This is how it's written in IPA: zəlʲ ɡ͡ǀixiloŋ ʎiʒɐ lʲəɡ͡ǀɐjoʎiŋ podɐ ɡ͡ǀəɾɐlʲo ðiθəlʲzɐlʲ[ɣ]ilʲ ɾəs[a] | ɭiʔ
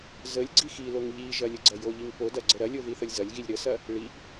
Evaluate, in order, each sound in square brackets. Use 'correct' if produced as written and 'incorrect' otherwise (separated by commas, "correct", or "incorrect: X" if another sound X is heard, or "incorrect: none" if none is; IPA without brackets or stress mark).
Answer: correct, incorrect: ɐ